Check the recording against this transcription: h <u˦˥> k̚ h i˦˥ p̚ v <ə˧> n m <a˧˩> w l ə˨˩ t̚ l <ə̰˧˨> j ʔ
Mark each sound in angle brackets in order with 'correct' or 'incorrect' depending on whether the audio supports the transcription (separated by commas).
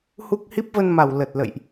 correct, correct, incorrect, correct